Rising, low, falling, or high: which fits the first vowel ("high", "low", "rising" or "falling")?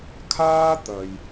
high